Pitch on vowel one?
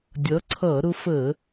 rising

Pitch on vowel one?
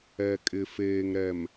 low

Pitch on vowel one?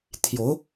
rising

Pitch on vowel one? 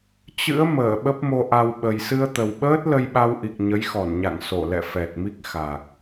rising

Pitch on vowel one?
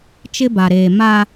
high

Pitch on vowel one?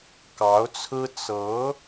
rising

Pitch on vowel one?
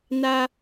high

